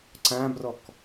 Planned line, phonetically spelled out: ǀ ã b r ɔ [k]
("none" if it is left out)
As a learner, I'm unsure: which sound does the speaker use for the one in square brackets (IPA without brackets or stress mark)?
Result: k